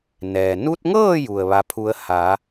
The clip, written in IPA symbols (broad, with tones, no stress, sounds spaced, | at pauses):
n ɛː˩ n u˧ t̚ ŋ ɤː˥˨ j u˧˩ ə̯ ʋ a˧˥ pʰ u˧˥ ə̯ h a˩˧